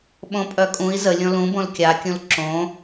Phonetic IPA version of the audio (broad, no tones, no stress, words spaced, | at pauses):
ɓõpʼœkʼũi̯ zə lʲõlũbõl kʲakʲũl ǁõ